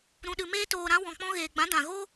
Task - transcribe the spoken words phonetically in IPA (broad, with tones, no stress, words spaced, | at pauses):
ɾũ˨ɗɨ˨ meː˧toː˨ɾã˧ wɔ̃˨k͡pɔ̃˧ɣeː˨ɡ͡bã˨˦ dã˨ɣo˦